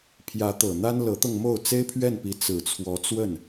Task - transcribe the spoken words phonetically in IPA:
pʰ j ä˧˥ t̪ ɤ˨˩ n̪ a˥ n l ɤ˧˥ t̪ ɤ˧ ŋ m o˥˩ ʊ̯ t͡s e˥ ɪ̯ pʰ ɥ ɛ˥˩ n p i˧˥ t͡s ɹ̩˨˩ t͡sʰ w ɔ˧˥ t͡s w ə˥˩ n

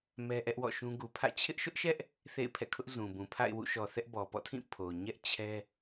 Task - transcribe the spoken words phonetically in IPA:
m ɛ˦ ʔ ɛ˦ ʔ w ɔ̰˦˨ ʃ ũ˦ ɡ u˨ pʰ ä̰˦˨ t͡ɕʰ ɪ˦ ʔ ʃ ʊ˦ ʔ ʃ ɛ˦ ʔ | θ ḛ˦˨ ɪ̯ pʰ ɛ̰˦˨ kʰ ʊ˦ ʔ z ũ˨ b ũ˨ pʰ a̰˦˨ ɪ̯ w ṵ˦˨ ʃ ɔ˨ θ ɛ˦ ʔ b ɔ˨ p ɔ̰˦˨ tʰ ĩ˦˨ pʰ o˨ ʊ̯ ɲ ɛ˦ ʔ t͡ɕʰ ɛ˦

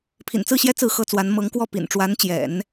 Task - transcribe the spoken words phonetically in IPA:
pʰ ḭ˨˩ n t͡s ɹ̩˥˩ ɕ j ɛ˥ t͡s ɹ̩˥˩ x ɤ˥ t͡s w a˧˥ n m ɤ˧˥ ŋ k w ɔ˥˩ p ḭ˨˩ n ʈ͡ʂ w a˧˥ n t͡ɕ j ɛ̰˨˩˦ n

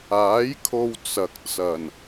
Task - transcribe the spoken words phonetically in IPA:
aː˨˥ j kʰ o˧ w t͡s ɐ˨ k̚ t͡s ɐ˨˩ n

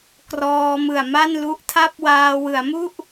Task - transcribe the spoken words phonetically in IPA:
k r ɔː˧ m ɯ˨˩ a̯ m a˥˩ n l u˦˥ ʔ tʰ a˥˩ p̚ w aː˧ w ɯ˩˦ a̯ m u˥˩ ʔ

